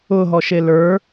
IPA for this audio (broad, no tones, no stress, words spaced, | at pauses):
ʊɦɔʃe lə˞